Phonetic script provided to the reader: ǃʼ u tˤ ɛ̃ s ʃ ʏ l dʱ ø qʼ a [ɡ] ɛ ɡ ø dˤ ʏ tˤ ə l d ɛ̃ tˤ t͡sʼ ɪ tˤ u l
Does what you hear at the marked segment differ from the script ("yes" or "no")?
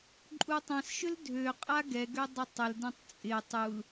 no